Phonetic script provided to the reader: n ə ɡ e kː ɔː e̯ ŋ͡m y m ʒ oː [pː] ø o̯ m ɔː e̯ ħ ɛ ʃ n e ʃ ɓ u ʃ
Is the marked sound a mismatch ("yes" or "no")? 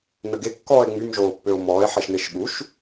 no